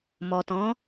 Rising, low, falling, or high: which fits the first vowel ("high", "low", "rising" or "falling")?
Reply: low